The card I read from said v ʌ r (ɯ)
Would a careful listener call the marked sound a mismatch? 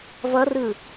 no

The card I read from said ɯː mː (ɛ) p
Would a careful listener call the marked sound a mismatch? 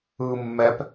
no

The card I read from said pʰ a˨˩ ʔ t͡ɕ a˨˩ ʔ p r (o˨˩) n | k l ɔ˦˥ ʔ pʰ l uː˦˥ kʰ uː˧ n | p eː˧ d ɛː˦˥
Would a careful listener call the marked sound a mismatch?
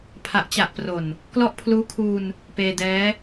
no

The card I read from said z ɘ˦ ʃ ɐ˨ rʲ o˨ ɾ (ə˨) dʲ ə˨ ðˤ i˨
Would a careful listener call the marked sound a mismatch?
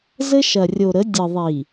yes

